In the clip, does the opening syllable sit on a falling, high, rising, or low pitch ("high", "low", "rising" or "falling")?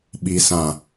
low